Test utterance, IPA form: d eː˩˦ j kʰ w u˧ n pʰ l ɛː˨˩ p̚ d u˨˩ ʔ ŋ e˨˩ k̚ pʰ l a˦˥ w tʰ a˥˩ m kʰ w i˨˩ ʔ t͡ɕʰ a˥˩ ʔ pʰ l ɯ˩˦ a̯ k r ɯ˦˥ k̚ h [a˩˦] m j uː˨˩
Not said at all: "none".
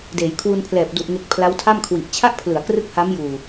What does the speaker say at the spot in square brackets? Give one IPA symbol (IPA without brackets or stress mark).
a˦˥